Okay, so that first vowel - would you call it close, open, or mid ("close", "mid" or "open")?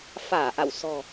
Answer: open